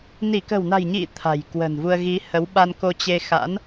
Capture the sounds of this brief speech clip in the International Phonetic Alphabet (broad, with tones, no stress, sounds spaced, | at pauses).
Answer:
n i˧˩ k ə̤˨˩ w n a̤˨˩ j ɲ ḭ˧˨ t̪ʰ a̤˨˩ j k w ə̤˨˩ n v u˧ ə̯ ɣ i˨˦ h ə˨˦ w ɓ a˧ n k o˧ t͡ɕ e˧ x a̰˧˥ n